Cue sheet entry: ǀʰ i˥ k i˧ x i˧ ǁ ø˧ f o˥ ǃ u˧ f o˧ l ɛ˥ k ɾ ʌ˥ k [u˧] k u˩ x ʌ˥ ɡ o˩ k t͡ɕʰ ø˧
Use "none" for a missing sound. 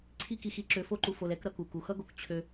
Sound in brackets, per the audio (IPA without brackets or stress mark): u˩